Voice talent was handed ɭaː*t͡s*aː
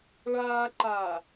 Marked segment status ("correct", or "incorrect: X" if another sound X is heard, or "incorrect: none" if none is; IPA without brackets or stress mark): incorrect: ǃ